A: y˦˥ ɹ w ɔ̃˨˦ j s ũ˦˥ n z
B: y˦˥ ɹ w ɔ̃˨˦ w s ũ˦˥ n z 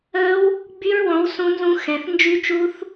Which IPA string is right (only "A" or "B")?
B